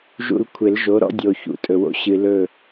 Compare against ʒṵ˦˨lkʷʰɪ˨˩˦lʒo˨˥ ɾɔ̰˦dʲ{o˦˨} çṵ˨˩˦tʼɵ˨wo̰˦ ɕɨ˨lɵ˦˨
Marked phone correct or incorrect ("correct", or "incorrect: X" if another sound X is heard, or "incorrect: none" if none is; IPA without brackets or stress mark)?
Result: incorrect: o˨